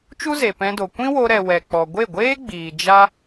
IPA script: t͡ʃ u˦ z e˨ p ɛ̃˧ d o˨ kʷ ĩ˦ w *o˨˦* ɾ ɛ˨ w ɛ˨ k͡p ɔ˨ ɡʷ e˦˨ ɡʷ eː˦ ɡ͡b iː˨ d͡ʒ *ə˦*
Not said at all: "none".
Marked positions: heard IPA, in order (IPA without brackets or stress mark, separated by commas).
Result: o˧, a˦